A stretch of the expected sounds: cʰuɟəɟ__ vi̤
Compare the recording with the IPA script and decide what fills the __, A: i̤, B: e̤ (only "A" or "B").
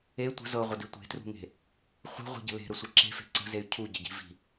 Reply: A